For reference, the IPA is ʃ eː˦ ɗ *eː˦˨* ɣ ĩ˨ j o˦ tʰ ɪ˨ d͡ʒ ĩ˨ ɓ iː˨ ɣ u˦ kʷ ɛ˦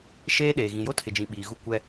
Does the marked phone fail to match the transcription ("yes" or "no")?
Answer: yes